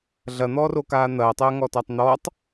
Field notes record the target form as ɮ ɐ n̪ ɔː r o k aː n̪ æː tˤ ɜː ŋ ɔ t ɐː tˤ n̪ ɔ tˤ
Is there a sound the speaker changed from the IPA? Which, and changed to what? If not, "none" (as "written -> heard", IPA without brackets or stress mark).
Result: æː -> ɐː